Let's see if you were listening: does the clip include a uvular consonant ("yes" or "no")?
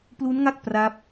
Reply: no